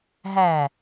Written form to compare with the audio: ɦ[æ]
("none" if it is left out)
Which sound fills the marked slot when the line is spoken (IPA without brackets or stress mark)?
æ